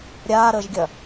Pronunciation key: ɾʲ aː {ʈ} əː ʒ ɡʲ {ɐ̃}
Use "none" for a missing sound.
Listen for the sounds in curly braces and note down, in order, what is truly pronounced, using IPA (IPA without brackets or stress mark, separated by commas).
ɾ, ɐ